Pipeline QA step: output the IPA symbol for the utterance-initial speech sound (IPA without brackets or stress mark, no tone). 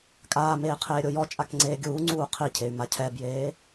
kʼ